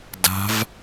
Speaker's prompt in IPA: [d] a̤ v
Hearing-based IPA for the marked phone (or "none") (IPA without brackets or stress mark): d